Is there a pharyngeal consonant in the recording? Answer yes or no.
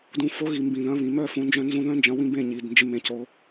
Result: no